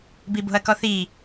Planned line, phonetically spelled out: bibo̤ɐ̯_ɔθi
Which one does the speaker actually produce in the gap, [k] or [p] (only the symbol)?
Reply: k